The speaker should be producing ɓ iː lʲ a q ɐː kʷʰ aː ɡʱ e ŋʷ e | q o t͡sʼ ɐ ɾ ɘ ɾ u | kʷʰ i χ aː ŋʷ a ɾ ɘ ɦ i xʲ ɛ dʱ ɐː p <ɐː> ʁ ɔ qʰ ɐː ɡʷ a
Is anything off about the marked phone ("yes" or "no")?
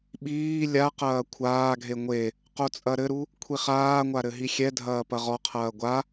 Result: yes